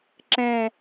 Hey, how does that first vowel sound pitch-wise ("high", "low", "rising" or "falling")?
low